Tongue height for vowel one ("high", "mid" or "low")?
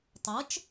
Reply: mid